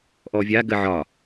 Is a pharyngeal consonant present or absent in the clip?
present